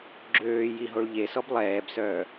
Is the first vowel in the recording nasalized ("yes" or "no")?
no